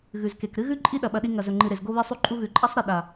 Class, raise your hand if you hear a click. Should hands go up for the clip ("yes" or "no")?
yes